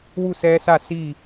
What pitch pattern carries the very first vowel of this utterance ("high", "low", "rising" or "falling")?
falling